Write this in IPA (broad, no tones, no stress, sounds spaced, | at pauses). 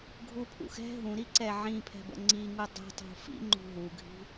ɡʱ u pʰ ṵ x ɛ̤ ɦ ũ ɾ i ǀ ɛ ʕ ĩ pʰ ɛ̤ b ə̰ ŋ͡ǀ i ŋ u dˤ i̤ tˤ ṳ f ḭ ŋ͡ǃ ṳ ɦ u ɡʱ i̤